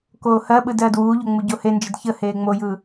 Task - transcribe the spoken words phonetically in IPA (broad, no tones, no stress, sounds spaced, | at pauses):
k oː h ɜ ɓ ɯ d ɜː d w uː ʎ o ŋ͡m u ɟ o h e n d͡ʒ ə d ç ə h eː ŋ͡m o j ɯː